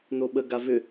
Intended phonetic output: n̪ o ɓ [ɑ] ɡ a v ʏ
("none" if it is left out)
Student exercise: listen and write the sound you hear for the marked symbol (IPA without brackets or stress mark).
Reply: ə